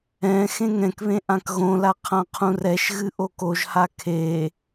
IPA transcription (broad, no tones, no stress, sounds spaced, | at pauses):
ɛ̃ x ẽ ŋ ɛ̃ k β ẽ ʔ ã k ɣ õ l a qʰ ã qʰ ũ r ɛ ʃ ɣ ɨ ʔ o k o ʒ h a kʰ e